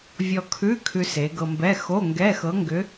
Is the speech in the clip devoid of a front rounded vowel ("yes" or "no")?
no